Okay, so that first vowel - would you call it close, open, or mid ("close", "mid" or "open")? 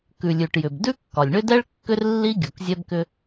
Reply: close